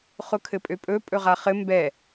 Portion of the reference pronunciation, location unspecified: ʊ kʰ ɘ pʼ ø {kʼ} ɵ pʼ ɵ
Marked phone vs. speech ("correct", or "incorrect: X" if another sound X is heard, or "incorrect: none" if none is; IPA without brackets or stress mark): incorrect: pʼ